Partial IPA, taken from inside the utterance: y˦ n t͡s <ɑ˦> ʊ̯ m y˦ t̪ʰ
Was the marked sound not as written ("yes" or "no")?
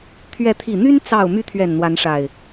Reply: yes